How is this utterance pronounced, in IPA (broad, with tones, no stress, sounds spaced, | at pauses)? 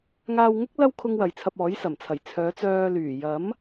ŋ aː˧ w ŋ ʊ˥ k̚ l ɐ˥ w kʰ ʊ˥ ŋ w ɐ˨ j t͡sʰ ɐ˧ p̚ ɔː˨˥ j s ɐ˨˩ m t͡sʰ ɐ˨˩ j t͡sʰ œː˨˥ t͡s œː˧ l yː˨˩ j ɐ˨˥ m